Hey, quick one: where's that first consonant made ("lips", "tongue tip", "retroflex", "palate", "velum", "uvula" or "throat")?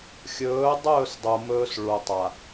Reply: velum